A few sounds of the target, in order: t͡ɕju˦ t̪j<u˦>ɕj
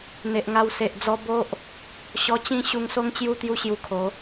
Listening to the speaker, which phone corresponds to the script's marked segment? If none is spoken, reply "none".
u˦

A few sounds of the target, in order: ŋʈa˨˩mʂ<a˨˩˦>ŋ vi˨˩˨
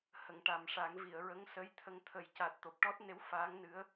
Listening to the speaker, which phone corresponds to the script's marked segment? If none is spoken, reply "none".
a˨˩˦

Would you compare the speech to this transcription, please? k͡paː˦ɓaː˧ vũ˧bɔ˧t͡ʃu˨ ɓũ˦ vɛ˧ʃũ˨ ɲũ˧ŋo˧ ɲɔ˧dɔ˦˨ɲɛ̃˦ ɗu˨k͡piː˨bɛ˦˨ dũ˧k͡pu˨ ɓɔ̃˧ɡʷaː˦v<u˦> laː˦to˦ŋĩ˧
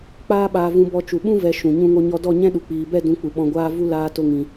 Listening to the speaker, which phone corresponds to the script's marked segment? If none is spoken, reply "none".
u˦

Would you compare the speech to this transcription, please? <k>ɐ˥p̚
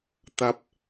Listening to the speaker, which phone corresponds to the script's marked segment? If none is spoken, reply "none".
t̪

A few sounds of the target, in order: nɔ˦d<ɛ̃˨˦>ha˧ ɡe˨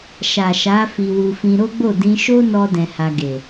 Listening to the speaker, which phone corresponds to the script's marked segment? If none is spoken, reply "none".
ɛ̃˧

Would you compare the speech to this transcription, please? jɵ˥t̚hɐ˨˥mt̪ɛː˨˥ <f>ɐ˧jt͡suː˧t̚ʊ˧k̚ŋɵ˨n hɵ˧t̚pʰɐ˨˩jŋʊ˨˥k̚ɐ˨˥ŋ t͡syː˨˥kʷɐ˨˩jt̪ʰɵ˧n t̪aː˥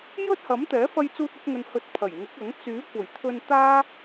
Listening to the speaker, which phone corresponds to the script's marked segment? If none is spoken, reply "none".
f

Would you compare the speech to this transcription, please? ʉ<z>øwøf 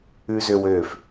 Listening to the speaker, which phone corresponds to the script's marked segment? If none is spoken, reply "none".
z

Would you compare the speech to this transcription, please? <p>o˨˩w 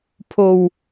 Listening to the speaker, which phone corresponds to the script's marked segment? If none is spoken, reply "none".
pʰ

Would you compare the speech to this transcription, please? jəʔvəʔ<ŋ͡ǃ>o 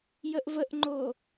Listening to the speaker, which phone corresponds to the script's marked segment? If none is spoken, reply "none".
ŋ͡ǃ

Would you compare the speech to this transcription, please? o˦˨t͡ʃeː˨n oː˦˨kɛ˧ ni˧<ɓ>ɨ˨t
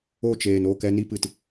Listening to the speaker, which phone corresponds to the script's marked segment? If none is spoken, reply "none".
p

